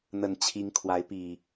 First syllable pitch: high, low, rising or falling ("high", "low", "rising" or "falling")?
low